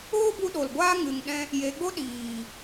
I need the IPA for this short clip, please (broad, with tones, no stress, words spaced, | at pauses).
oː˦bu˧ ɗo˨lɡʷaː˦ ŋɨ˨ŋɗɛ̃˧ | je˨˦ɡ͡bo˦ ɗiː˨